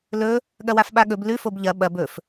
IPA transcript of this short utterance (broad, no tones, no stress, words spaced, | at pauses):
lɵ | ɠɐwafɓaɠɵb lʉfob ʎɐ ɓɐb ɵf